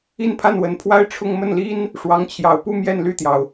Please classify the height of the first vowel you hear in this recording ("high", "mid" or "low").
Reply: high